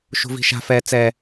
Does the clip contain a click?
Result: no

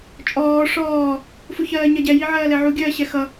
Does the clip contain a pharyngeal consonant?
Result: yes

